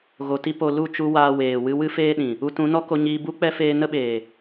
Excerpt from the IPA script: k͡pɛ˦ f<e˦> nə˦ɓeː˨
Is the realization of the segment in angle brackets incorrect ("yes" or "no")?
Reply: yes